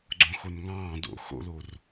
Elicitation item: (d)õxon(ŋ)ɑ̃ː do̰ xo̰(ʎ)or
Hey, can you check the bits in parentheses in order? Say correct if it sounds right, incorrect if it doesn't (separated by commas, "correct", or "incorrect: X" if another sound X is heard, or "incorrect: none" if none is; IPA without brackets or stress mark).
incorrect: ɡ͡ǀ, correct, incorrect: l